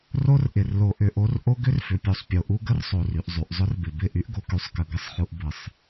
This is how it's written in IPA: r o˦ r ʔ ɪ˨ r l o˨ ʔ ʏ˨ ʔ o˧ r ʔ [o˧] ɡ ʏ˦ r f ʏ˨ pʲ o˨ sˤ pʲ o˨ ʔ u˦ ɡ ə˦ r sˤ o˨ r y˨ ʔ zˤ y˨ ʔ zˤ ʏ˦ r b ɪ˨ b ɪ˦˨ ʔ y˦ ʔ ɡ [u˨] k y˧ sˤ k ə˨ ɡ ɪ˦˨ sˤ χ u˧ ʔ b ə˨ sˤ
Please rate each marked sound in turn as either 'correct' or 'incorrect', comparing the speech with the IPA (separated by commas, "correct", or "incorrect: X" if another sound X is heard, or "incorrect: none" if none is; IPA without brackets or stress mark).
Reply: incorrect: o˦, incorrect: o˨